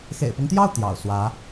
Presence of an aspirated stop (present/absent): absent